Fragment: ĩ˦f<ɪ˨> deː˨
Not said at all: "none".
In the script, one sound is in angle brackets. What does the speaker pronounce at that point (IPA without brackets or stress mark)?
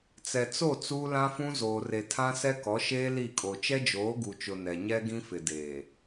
ɪ˨